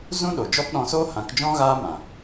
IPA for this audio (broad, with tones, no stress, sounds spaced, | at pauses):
z ũ˦ ɗ o˨ d͡ʒ ɔ˦ p ɗ ɔ̃˧ s oː˦ h ã˨˦ k d͡ʒ ɔ̃˦ ɣ aː˦ m ã˨